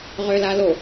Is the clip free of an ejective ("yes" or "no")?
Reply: yes